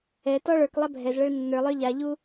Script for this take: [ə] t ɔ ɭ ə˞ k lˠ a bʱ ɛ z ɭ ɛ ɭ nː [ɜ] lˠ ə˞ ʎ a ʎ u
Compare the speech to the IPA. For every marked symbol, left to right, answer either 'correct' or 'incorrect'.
incorrect, incorrect

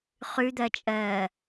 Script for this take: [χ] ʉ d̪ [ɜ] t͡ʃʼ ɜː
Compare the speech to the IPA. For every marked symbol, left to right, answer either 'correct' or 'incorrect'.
correct, correct

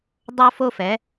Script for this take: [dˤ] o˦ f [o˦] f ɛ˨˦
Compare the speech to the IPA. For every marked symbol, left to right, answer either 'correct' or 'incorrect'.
correct, correct

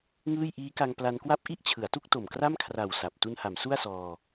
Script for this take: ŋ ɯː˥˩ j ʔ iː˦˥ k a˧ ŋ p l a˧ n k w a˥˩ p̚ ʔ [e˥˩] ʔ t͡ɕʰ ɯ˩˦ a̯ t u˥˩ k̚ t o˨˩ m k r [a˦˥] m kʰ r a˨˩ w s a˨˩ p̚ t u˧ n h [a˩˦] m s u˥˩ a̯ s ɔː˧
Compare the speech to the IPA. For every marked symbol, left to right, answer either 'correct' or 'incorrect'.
incorrect, incorrect, correct

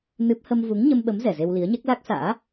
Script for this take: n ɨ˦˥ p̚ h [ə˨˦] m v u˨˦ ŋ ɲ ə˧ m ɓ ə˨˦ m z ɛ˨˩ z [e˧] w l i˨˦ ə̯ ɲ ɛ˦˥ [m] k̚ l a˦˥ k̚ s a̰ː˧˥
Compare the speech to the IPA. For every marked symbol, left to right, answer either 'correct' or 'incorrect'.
incorrect, correct, incorrect

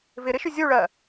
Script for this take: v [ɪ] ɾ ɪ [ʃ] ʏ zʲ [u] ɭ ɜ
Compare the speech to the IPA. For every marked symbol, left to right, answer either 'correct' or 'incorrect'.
correct, correct, correct

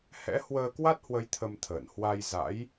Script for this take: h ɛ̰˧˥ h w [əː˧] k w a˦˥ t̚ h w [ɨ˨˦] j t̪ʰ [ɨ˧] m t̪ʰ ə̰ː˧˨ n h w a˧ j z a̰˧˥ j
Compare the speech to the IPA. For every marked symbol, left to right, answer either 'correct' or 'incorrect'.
correct, incorrect, incorrect

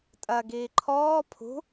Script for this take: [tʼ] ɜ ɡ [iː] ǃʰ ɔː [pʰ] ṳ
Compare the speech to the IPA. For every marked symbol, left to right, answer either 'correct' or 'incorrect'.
correct, correct, correct

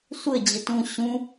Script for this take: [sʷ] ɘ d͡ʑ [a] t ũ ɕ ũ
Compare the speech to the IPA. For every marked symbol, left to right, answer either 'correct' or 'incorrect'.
correct, incorrect

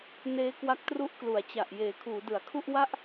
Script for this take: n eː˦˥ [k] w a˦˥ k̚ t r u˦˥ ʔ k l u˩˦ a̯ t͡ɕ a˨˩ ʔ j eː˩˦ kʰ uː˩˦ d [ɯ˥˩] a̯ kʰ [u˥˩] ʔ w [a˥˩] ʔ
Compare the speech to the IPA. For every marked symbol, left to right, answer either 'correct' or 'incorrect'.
correct, incorrect, correct, correct

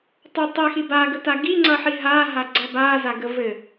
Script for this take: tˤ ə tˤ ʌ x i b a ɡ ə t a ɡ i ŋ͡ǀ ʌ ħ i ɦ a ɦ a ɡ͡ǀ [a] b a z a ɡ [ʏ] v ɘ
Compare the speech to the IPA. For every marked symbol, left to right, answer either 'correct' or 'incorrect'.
incorrect, incorrect

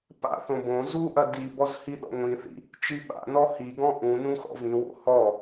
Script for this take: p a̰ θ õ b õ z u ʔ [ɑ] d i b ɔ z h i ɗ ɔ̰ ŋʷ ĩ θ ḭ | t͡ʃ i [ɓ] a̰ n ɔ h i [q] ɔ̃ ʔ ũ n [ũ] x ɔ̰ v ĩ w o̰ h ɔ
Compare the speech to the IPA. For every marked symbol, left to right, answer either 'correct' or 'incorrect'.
incorrect, correct, incorrect, correct

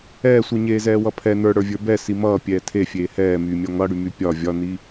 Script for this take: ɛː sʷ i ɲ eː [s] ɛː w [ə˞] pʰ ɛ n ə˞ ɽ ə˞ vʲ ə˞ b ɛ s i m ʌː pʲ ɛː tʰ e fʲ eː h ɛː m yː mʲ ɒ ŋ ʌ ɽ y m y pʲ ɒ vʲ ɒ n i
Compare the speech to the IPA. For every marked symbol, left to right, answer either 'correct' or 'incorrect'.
incorrect, incorrect

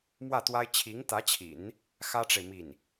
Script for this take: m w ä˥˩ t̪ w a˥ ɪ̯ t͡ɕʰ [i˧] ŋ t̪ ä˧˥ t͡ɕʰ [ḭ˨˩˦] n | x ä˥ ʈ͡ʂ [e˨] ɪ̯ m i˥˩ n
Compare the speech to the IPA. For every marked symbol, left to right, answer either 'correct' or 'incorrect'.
incorrect, correct, correct

